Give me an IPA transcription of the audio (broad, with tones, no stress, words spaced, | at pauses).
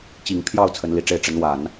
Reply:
t͡ɕi˨˩ŋpʰjɑ˥˩ʊ̯ t͡sʰə˧˥nli˨˩ʈ͡ʂe˥˩ɪ̯ ʈ͡ʂə˧˥nwa˨˩˦n